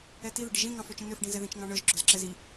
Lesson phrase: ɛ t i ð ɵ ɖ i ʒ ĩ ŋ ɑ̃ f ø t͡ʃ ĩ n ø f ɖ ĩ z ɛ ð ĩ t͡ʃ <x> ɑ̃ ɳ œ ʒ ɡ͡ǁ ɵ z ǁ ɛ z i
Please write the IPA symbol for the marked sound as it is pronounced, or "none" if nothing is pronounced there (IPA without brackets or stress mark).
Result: ŋ